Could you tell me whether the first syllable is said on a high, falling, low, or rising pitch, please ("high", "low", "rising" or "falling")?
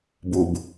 low